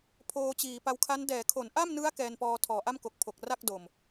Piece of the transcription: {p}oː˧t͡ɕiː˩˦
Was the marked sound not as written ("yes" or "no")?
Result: yes